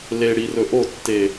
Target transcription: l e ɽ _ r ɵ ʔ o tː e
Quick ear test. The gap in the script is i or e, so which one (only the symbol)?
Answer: i